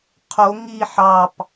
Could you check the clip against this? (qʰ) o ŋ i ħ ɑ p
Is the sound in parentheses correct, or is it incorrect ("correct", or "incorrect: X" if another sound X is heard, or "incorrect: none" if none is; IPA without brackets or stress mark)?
correct